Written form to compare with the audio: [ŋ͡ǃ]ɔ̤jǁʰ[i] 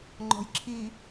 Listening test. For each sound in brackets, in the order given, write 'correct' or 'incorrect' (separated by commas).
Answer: correct, correct